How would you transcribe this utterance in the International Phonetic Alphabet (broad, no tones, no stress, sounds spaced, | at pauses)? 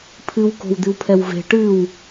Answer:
pʰ ɨ w k o̤ w d̪ ɨ w pʰ ɛ w v e̤ ʈ ɨ w